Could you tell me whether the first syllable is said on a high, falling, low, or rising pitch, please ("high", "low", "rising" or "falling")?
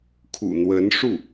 low